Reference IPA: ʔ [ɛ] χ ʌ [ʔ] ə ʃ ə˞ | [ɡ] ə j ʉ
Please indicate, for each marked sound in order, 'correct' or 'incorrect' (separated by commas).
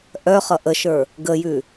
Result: incorrect, correct, correct